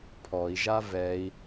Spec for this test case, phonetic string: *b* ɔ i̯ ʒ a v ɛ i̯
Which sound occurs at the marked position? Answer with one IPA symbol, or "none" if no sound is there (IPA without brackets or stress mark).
pʰ